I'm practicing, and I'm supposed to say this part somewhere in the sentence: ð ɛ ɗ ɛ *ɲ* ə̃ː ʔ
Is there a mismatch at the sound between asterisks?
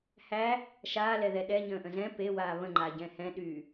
no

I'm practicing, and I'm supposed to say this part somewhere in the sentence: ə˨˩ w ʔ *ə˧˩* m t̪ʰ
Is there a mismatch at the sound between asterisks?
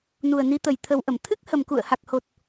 no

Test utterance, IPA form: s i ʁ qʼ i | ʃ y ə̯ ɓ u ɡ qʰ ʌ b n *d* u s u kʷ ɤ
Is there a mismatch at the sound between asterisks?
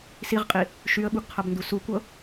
no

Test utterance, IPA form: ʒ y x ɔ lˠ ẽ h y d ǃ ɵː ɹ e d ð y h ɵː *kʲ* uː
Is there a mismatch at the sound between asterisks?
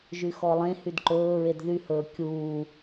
no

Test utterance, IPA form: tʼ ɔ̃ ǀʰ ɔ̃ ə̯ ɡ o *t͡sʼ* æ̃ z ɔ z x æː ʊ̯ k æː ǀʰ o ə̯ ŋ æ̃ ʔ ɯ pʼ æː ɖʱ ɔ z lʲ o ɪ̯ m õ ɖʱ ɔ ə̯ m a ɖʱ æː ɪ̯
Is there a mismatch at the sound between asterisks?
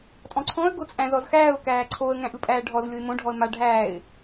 no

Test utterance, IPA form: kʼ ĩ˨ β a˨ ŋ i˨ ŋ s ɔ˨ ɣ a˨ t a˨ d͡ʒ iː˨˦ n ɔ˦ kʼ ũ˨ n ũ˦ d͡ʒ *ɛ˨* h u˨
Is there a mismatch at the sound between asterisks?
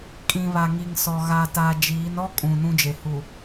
yes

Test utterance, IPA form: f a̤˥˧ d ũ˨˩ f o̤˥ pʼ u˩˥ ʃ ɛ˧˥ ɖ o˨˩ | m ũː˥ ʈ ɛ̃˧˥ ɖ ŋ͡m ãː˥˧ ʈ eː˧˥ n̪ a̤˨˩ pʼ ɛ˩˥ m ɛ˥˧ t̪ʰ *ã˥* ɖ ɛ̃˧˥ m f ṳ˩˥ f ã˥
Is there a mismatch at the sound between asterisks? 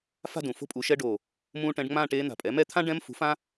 no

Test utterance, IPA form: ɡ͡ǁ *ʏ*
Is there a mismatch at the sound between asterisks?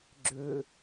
no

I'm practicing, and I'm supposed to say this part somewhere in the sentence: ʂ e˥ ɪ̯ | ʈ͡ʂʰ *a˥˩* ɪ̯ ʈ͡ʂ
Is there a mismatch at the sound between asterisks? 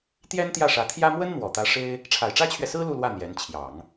yes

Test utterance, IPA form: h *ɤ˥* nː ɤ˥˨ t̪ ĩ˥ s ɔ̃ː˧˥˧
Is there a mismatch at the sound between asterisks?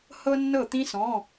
no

